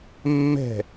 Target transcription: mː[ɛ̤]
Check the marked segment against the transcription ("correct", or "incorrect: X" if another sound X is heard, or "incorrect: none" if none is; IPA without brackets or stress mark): correct